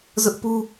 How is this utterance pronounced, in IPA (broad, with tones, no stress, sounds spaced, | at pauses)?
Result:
z ʊ˦ ʔ p u˦